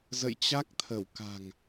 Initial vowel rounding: unrounded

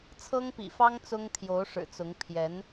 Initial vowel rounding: unrounded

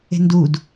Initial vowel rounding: unrounded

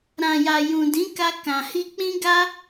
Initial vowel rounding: unrounded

